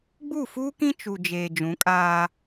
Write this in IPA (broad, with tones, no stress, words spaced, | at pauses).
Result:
ɡ͡bu˦˨fuː˦kĩ˦ t͡ʃu˨d͡ʒeː˨ d͡ʒũ˨˦kʼaː˦